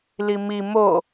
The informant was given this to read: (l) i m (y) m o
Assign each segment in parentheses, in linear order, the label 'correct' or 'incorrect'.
correct, incorrect

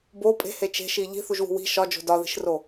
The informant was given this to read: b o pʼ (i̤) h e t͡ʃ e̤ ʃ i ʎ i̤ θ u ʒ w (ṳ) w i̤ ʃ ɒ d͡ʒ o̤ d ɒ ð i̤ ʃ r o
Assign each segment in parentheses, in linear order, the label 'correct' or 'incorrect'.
incorrect, correct

